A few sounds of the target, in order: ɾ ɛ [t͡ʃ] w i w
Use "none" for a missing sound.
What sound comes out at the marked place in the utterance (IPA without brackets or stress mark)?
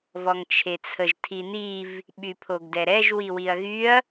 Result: ʒ